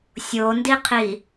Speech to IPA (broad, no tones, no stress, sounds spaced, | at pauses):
sʲ o n d i qʰ i